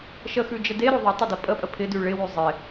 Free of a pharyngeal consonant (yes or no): yes